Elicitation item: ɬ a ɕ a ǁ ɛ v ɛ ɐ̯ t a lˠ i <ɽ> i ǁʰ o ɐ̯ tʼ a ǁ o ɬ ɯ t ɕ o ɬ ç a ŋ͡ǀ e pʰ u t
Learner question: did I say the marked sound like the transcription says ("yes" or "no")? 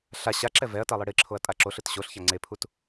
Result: yes